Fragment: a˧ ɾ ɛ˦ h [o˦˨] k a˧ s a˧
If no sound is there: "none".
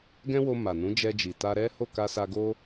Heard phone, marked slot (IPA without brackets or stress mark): o˦˨